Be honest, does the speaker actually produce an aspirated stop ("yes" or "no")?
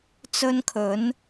yes